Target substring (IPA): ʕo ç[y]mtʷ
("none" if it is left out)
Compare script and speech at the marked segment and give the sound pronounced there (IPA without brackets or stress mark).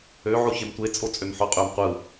e